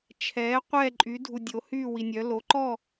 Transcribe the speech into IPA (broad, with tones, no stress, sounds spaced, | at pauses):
t͡ʃʰ ɛː˩˥ qʷ ɛː˥˨ ǃʼ y˩˥ dʱ u˨ dʲ o˩˥ h yː˥˨ w i˨ nʲ œ˩˥ l o˩˥ ǃ ɔ˥˨